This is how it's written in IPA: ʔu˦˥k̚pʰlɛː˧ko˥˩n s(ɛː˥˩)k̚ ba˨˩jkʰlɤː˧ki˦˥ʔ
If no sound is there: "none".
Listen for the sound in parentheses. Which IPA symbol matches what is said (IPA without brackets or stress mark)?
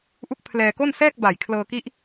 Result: ɛː˥˩